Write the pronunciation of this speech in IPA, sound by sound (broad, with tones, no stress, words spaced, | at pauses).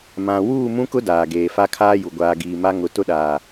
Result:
mã˨ wuː˦˨mũ˦kʊ˦ daː˨ɡeː˨ fa˦kʰaː˦ju˨ ɡʷaː˨ɡiː˨ ma˦ ŋʊ˨tʊ˦ɗaː˨